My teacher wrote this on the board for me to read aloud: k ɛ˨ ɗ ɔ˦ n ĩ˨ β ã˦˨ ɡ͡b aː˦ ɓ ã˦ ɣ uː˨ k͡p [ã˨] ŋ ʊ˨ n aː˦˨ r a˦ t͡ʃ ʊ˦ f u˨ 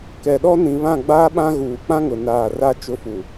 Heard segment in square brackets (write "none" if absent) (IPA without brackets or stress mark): ã˦